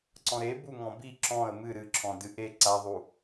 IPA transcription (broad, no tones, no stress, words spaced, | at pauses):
ǀɔ̃ɾe buŋɔ̃bi ǁɔ̃ə̯ mɨ ɾɨǁʰɔ̃dɨ ʔe ǀaðˤu